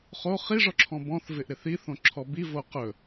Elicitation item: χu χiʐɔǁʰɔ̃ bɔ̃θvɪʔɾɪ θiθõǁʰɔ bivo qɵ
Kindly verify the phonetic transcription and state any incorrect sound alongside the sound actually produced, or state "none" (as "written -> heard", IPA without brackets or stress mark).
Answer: u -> o